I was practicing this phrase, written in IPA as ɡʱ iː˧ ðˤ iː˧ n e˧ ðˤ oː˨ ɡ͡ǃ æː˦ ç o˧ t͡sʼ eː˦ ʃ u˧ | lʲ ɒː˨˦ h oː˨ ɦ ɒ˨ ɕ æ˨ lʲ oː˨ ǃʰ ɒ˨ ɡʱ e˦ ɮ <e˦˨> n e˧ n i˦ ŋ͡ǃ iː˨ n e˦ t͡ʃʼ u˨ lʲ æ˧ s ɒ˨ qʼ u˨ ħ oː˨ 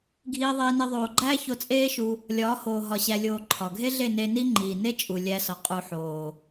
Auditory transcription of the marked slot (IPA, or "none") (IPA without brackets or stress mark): e˦˨